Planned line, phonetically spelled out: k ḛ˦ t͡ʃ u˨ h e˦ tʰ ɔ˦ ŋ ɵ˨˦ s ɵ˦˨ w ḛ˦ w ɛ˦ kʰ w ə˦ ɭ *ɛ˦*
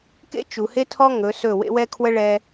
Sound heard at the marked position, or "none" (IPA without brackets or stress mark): ɛ˦